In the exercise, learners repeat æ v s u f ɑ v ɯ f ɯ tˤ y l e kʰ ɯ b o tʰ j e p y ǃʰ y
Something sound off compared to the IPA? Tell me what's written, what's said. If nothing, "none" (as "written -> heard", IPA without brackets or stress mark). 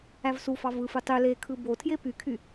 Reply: ǃʰ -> kʰ